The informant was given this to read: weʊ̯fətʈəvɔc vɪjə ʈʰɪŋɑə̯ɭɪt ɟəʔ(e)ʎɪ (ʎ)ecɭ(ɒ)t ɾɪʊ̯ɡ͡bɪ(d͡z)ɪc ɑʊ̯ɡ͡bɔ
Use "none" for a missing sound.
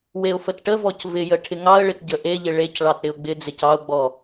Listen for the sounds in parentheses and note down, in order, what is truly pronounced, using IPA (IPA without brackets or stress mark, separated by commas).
e, ɭ, ɑ, d͡z